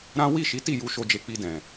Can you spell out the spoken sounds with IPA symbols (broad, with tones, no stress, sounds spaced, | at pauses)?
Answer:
ɾ ã˦ w i˦˨ ʃ i˨˦ t i˦˨ j u˧ ʃ o˧ d͡ʒ e˧ k͡p i˧ d ɛ̃˨